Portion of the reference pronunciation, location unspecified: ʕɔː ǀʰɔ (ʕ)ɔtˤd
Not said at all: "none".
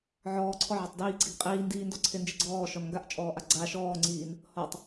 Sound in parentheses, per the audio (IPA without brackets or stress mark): ʕ